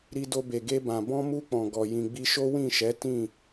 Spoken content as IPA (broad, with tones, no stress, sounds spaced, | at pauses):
ɾ i˧ d o˧ b e˨ ɡ e˧ b ã˨ b ɔ̃˧ m u˧ k͡p ɔ̃˨ ɡ ɔ˨ j ĩ˨ ɡ͡b i˧ ʃ o˦ w ĩ˦˨ ʃ ɛ˨˦ t ĩ˦˨